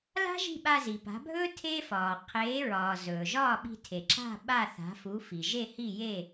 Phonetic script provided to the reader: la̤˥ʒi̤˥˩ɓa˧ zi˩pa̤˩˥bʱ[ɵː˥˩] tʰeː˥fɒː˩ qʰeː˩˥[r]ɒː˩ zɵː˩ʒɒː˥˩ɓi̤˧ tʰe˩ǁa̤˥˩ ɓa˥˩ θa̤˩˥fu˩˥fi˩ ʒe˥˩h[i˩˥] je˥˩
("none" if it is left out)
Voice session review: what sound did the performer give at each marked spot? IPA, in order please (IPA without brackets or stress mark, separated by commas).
ɵː˥, ɹ, i˥˩